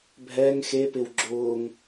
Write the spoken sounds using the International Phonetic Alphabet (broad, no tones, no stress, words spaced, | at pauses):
bʱɛŋ xepɪw ɡ͡ǁʊːŋ